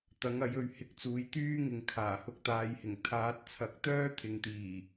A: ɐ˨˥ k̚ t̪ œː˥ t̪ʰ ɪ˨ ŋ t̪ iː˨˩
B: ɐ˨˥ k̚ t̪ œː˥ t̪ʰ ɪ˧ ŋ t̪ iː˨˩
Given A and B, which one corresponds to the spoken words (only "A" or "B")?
A